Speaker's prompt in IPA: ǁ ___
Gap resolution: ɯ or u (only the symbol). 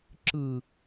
ɯ